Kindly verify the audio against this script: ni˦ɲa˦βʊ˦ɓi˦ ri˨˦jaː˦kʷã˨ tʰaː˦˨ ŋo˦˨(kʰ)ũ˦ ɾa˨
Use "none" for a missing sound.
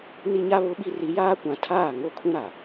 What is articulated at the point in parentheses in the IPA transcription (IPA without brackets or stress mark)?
kʰ